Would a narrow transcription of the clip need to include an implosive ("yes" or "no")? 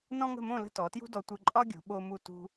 yes